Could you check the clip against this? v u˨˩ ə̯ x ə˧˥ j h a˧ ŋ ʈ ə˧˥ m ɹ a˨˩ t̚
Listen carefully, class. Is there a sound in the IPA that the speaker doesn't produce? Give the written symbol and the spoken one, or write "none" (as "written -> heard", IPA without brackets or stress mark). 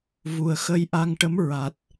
h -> ʔ